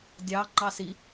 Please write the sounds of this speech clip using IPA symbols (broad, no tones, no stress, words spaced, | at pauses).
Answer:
dʲɑ ŋ͡ǃɑsi